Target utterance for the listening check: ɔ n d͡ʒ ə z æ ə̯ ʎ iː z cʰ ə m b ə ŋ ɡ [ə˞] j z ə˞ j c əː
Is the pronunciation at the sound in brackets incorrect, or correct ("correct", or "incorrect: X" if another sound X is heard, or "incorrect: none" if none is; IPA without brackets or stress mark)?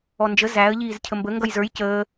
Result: incorrect: ʌ